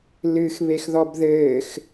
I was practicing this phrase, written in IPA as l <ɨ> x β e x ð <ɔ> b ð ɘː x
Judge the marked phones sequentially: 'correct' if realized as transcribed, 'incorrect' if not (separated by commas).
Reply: correct, correct